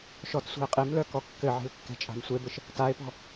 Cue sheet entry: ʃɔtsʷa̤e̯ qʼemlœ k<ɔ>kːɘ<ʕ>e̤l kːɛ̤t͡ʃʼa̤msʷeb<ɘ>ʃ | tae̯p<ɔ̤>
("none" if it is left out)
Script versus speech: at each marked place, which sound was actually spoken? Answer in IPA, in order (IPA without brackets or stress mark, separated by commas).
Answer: ɔ, ʕ, ɘ, ɔ̤